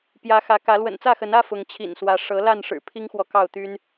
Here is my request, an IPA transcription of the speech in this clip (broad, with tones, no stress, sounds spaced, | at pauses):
p j ä˨˦ x ä˨˦ k ä˨˦ l w ə̰˨˩ n t͡s ä˥˨ x ə˨˦ n ä˦ f ʊ˨˦ ŋ t͡ɕʰ ḭ˨˩ n s w ä˨˦ ʂ ɤ˨˦ l a˥˨ n ʂ ɻ̩˨˩ pʰ i˦ ŋ x w ɔ˨ k ɑ˥˨ ʊ̯ t̪ y˦ n